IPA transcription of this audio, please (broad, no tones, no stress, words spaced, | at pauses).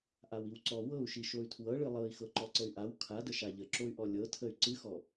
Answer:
ʔawiwǀɔ wɤu̯ʃi ʃoy̯tʰwɤɭɨ lˠɤi̯ xɤǃɔǀəy̯ʔaw kʰadə ʃaʎəǁoy̯ʔɔ lʲɤtʰəy̯ ǀɨxɔ